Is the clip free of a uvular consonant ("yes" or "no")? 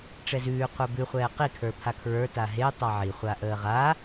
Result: no